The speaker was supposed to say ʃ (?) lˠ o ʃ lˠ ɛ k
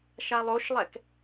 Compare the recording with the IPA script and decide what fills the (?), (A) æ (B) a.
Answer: B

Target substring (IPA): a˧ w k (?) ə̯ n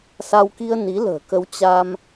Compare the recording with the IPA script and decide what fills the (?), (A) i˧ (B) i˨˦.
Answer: A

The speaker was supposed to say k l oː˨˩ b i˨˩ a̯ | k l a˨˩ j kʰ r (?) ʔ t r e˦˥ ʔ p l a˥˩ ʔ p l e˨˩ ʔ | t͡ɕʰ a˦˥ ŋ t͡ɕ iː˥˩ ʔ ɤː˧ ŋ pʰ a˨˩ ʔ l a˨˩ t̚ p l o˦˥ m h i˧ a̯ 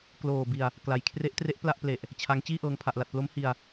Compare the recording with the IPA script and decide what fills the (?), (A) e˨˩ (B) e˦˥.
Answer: B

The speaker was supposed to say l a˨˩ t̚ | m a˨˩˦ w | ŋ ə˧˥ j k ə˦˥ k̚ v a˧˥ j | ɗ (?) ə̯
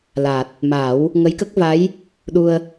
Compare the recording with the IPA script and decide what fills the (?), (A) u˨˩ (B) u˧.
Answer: B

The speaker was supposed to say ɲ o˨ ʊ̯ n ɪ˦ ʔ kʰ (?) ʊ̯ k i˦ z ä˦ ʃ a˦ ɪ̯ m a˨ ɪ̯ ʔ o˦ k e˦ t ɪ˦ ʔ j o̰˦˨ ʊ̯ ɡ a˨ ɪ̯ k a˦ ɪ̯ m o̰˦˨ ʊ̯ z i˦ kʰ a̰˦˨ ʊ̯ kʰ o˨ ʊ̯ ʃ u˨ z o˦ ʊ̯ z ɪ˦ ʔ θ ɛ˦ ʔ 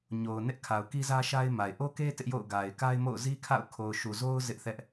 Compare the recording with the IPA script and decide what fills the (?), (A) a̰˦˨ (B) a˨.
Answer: B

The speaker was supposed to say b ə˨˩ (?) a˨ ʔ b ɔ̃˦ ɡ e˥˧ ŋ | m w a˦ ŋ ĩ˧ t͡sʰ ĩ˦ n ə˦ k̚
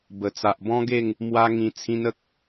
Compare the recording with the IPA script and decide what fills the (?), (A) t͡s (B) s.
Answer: A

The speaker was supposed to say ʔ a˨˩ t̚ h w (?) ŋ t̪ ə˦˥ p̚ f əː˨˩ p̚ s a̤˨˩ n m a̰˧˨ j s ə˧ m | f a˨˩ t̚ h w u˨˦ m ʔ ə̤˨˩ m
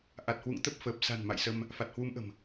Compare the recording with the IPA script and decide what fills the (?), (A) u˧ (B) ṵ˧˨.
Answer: B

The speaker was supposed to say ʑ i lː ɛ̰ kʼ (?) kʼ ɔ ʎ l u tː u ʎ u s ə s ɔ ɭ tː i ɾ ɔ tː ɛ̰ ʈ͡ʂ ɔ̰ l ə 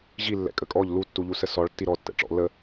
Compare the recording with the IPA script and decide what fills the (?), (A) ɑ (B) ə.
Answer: B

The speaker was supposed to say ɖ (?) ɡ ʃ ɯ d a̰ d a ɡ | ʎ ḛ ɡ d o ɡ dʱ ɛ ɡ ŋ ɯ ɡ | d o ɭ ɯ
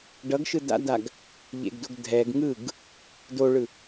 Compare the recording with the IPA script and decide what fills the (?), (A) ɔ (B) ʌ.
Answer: B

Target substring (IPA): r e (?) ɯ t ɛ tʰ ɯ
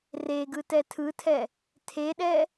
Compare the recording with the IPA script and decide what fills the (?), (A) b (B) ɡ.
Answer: B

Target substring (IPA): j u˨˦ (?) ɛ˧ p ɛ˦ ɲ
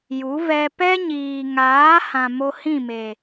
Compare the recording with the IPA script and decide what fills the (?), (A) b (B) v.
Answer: B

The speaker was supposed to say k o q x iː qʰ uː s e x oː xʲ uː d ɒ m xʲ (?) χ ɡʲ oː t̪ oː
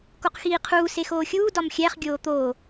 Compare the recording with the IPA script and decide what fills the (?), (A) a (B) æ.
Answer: B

